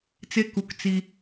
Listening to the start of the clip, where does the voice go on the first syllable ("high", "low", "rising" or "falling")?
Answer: high